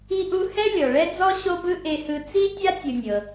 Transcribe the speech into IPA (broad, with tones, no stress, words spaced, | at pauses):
i˧ʔu˧ hɛ˥lʲɔ˩ ɭɛ˥d͡zɔ˥ ɕo˥bɯ˥ ʔe˧hɯ˧ t͡si˥tʲa˥ tʲɯ˧nʲɤ˩